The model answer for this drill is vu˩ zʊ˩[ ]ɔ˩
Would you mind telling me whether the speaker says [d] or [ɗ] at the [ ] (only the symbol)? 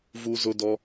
d